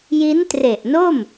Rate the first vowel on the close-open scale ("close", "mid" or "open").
close